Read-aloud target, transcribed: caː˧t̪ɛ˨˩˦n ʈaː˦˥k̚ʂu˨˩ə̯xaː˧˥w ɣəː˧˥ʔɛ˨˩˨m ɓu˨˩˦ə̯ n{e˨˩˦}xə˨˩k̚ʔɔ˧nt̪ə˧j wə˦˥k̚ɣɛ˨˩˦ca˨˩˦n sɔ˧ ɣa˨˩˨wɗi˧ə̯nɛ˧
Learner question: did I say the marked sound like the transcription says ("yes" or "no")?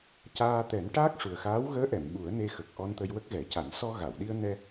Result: no